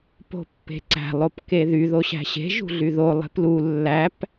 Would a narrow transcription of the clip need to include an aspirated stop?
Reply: no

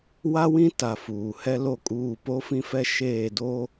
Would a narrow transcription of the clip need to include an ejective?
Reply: yes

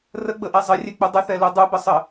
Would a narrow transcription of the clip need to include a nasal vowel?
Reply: no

